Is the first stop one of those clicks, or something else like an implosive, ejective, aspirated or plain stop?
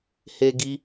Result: plain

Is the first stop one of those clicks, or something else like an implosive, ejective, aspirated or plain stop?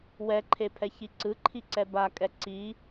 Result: click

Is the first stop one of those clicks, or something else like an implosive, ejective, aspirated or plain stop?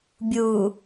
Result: plain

